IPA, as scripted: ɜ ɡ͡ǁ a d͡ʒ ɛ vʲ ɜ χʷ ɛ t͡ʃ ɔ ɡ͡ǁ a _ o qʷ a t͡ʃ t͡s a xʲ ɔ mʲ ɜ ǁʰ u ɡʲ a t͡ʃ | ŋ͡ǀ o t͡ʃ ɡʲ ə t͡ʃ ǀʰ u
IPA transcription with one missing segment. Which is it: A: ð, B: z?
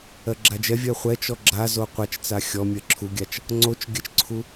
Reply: B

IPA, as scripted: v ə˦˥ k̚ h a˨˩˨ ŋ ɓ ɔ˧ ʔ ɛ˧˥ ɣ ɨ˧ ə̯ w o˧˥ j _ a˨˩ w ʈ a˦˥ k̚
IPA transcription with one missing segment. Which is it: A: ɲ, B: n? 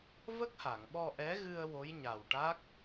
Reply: A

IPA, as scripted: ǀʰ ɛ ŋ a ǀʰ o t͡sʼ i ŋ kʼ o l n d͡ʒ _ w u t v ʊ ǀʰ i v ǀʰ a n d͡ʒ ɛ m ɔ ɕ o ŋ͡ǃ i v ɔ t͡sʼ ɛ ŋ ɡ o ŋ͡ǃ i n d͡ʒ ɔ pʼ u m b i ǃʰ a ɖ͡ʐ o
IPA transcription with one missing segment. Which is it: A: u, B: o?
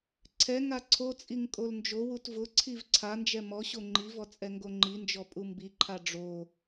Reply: B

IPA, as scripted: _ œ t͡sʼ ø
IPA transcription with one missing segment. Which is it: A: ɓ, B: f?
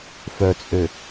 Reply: B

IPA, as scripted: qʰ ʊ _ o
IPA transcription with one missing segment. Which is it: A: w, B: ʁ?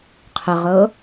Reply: B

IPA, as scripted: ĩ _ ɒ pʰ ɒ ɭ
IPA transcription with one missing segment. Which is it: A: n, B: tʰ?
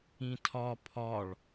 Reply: B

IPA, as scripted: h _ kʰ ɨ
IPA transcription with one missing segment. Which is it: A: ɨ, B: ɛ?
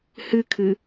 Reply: A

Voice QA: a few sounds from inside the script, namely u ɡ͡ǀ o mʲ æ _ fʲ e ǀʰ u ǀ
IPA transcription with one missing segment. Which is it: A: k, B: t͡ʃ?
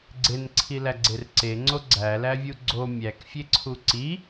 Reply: A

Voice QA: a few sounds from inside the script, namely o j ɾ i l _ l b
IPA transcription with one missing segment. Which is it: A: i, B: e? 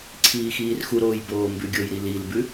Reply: A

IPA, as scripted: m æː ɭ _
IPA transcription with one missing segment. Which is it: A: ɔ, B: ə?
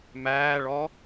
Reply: A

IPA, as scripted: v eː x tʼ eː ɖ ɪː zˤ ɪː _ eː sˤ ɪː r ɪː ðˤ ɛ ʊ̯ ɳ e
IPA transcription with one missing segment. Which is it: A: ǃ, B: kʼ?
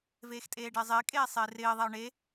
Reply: B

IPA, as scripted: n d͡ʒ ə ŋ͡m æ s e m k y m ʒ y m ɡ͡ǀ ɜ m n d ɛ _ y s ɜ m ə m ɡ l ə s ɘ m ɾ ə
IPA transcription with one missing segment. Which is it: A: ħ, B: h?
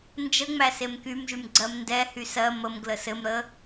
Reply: B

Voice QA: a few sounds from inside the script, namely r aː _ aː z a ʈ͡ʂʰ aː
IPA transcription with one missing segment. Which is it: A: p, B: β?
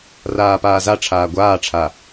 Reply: A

